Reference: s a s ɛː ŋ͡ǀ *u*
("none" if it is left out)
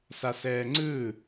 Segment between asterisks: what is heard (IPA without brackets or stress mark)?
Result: ɯ